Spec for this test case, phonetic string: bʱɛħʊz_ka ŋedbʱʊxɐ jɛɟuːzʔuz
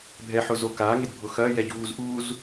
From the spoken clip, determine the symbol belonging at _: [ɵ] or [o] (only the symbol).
o